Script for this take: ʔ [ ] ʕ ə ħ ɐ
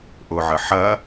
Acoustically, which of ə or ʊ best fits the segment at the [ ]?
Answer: ʊ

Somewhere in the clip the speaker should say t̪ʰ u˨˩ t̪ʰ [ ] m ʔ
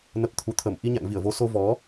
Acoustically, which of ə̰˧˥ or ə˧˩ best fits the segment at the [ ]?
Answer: ə˧˩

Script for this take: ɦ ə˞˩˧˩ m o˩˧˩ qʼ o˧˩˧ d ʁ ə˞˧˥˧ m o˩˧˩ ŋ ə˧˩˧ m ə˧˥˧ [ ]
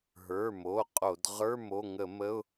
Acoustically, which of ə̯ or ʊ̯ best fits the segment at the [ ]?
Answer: ʊ̯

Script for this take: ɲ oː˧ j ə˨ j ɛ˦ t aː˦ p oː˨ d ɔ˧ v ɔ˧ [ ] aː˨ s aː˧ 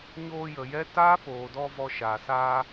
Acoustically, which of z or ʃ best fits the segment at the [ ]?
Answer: ʃ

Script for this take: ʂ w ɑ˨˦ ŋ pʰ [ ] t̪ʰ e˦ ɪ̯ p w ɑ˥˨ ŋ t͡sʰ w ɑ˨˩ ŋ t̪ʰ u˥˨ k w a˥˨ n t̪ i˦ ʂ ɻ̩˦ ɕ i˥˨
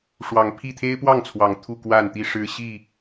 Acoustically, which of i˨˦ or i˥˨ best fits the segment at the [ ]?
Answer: i˥˨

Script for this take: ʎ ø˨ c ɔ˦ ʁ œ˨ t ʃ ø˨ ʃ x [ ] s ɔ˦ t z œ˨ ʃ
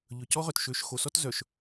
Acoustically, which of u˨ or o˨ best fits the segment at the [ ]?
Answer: o˨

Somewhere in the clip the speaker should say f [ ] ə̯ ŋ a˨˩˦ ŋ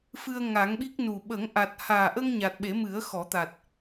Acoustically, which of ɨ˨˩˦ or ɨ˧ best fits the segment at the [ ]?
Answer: ɨ˧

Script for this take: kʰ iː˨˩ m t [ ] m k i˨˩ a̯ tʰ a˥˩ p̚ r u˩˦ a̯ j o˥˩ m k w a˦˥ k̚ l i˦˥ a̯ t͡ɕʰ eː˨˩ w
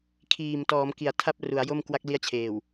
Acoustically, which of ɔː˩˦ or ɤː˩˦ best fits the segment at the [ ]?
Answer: ɔː˩˦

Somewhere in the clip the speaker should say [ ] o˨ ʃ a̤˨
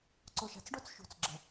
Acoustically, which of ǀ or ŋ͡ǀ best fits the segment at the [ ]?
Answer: ǀ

